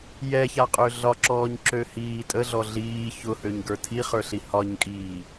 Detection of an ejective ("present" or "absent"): present